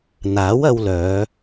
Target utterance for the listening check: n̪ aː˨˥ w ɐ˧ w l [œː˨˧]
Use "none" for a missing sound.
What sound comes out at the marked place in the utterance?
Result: œː˨˧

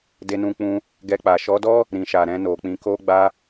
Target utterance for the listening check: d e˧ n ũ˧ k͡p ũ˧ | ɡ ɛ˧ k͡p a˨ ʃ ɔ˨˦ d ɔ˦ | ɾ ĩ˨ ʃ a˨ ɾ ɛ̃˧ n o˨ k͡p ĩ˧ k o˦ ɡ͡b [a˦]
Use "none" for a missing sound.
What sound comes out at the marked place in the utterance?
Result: a˧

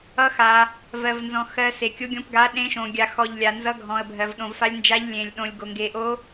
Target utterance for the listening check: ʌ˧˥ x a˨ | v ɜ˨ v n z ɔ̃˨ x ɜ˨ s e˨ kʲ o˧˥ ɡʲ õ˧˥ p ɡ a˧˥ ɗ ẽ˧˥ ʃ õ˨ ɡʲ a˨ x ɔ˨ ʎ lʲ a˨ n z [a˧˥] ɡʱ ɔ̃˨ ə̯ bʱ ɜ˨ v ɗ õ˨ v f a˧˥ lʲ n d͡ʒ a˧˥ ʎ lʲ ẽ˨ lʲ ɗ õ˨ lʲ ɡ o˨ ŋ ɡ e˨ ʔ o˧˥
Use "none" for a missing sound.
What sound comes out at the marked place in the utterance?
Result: ʌ˧˥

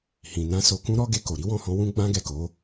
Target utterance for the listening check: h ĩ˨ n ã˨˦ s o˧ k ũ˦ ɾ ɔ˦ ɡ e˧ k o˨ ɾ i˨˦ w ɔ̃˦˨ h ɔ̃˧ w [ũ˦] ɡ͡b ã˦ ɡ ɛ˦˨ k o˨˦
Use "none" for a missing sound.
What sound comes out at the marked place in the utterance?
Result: ũ˦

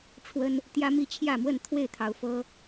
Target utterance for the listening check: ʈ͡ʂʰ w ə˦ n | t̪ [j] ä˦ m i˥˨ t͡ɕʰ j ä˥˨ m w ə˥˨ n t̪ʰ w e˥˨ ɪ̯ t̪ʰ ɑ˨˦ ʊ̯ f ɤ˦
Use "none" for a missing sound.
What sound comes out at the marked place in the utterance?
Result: j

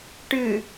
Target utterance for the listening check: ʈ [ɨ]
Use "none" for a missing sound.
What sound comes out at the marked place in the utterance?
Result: ɨ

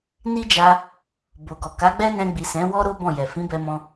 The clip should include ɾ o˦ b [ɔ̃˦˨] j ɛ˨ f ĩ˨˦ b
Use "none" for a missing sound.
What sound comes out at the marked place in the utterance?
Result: ɔ̃˦˨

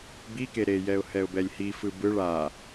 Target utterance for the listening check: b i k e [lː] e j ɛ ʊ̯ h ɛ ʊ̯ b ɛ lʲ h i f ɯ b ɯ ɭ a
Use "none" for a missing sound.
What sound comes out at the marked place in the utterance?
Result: ɾ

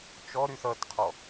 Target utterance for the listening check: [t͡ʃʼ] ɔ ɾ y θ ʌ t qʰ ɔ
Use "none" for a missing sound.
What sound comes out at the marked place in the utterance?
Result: t͡ʃ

